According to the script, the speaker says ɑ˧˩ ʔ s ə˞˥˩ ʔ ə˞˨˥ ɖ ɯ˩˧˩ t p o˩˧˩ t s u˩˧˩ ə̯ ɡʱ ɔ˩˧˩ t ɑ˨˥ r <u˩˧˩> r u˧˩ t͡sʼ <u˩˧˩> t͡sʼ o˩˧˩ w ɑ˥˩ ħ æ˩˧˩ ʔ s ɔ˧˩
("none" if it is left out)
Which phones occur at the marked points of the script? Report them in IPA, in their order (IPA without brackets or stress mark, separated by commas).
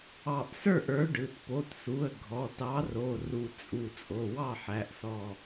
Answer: o˩˧˩, u˧˩